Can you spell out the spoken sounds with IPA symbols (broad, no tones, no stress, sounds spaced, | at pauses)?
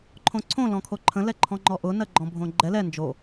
ǃʰ õ ǀʰ õ l ɔ̃ kʰ o ǃʰ ə̃ l ɛ ǃʰ ɔ̃ ŋ͡ǃ ɔ ʔ ʊ n ɜ ɡ͡ǃ ɔ̃ bʱ õ ɡ͡ǃ ɛ l ɛ n d͡ʒ o